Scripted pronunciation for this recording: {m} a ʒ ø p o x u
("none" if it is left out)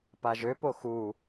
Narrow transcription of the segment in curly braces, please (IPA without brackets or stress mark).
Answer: p